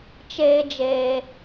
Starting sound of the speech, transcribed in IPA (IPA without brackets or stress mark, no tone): t͡ʃ